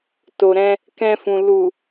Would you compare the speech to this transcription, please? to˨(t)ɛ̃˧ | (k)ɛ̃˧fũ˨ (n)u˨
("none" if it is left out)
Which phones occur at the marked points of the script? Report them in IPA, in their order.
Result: ɾ, k, l

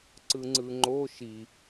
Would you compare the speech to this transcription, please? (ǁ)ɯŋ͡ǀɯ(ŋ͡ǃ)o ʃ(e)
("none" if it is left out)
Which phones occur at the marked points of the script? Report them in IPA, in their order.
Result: ǀ, ŋ͡ǃ, i

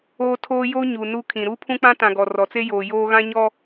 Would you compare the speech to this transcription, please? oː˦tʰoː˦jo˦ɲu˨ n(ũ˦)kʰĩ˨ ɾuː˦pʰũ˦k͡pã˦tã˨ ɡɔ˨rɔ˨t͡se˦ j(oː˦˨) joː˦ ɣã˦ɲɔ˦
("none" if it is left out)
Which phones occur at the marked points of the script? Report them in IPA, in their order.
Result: u˦, oː˨

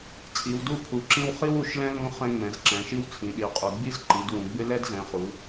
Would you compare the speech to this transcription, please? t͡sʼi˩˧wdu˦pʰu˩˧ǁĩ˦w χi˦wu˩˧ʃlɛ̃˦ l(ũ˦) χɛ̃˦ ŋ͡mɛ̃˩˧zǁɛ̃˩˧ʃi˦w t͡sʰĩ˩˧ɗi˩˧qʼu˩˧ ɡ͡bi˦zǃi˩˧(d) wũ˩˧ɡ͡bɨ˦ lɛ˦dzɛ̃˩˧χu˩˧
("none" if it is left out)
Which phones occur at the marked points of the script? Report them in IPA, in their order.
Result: ũ˦, d

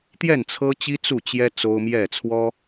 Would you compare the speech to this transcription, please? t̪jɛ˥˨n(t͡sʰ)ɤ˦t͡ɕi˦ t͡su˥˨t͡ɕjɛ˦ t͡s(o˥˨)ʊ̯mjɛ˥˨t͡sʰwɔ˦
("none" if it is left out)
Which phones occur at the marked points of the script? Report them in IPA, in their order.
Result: t͡sʰ, o˦

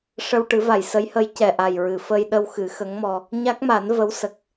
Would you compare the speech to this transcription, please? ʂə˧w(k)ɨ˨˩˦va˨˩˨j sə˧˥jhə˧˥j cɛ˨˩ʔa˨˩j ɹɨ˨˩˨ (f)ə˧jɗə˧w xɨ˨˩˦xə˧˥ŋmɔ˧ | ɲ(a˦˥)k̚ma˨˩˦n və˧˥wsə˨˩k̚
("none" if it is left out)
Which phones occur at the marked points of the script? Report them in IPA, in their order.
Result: ʈ, f, a˦˥

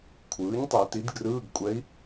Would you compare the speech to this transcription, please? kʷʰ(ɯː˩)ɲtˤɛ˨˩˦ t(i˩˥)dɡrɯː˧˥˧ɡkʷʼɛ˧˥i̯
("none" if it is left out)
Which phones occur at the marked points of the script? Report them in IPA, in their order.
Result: ɯː˩˥, i˩˥

